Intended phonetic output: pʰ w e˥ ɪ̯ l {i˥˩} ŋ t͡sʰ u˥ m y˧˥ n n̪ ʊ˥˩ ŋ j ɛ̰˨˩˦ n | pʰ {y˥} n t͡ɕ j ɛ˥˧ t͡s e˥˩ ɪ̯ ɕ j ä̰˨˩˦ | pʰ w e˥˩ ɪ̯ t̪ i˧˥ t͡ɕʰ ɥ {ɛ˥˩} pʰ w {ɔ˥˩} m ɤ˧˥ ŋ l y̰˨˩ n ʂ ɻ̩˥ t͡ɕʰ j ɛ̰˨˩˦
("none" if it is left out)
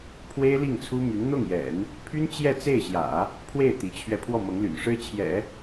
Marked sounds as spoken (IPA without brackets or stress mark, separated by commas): i˥˩, y˥, ɛ˧, ɔ˥˩